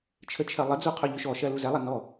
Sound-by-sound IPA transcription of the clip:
t͡ʃʰət͡ʃʰɜlˠəd͡zu qʰɵʎʏʃɔʃɜ luzɛlˠɛ nɔ

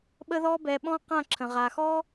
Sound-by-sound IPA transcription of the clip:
ɓə˦ðɔ˦bɛ˧ɓɔ̃˦ qã˦˨ǁʰə̃˨ʁa˨xɔ˦

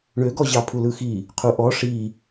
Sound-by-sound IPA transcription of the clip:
ɳøɡɔ ʑɑpʰulɯxi | qʰuʔɔ ʂi

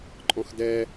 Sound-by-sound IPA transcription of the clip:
ǃʼɔ̃xdɛ

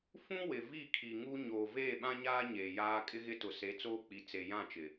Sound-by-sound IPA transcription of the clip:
fũ˦ wɪ˨ vi˦˨kʰi˨ŋu˦ ɲo˨ veː˦˨ɓã˦ɲaː˦ ɲeː˨jaː˦ kʼɪ˦ɣɪ˦tʊ˨ se˨˦t͡soː˦k͡pi˨ t͡se˨jã˦˨t͡ʃɪ˨

